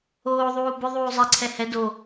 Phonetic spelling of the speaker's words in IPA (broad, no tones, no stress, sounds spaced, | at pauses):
oː ðˤ uː b ʏ ðˤ uː zˤ ɛ ǀʰ ɛ h ɛ d o